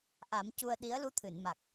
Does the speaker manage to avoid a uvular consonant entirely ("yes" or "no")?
yes